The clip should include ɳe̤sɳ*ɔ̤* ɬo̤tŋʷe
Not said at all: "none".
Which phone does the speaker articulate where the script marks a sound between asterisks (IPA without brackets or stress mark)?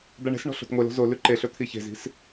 ɔ̤